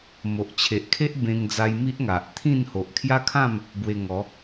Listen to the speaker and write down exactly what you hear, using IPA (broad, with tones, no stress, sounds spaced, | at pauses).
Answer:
m o˨ ʔ t͡ɕʰ e˨ ʔ kʰ e˦ ʔ b ẽ˧ ŋ d͡z a˧ j m i˦ ʔ ŋ a˨ ʔ t̪ʰ ĩ˥˧ n h o˨ ʔ kʰ j a˦ kʰ ã˥˧ m | b w e˧ ŋ ɔ˨˦